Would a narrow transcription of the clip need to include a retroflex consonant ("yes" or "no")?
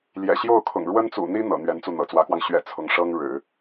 yes